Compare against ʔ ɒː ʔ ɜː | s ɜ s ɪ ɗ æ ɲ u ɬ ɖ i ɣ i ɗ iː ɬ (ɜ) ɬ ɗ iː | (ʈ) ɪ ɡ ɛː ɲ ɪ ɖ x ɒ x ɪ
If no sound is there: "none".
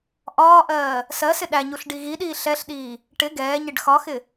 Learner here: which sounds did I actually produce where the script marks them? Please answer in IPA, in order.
ɛ, ʈ

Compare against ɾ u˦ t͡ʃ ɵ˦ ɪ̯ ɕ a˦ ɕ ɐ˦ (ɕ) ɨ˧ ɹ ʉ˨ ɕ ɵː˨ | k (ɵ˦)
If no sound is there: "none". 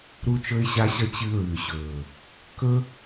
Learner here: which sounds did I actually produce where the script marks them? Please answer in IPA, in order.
t͡ɕ, ɵ˦

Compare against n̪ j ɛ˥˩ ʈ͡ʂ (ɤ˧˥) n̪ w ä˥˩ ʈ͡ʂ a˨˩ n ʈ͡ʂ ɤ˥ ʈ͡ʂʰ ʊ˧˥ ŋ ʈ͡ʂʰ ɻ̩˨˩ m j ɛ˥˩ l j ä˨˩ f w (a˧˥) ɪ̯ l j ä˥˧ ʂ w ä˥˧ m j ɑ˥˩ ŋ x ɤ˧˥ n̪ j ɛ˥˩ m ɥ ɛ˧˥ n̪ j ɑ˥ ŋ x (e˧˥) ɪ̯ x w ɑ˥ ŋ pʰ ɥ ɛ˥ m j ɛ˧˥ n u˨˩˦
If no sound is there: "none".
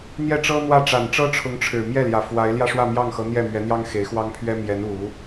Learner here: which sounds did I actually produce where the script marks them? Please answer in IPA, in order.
ɤ˥, a˧˥, e˧˥

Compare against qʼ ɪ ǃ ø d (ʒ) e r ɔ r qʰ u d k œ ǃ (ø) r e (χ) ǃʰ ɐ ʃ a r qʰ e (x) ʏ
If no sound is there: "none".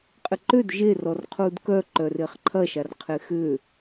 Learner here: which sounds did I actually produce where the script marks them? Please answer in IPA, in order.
ʒ, œ, χ, x

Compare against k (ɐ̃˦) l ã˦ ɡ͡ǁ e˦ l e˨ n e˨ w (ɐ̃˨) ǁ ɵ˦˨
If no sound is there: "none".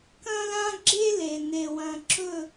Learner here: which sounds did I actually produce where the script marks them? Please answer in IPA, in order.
ɐ̃˦, ɐ̃˨

